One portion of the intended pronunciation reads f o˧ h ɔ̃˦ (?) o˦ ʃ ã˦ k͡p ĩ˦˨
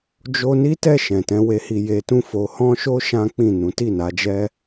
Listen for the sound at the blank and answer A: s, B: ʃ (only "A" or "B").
B